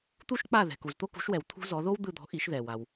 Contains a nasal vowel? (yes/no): no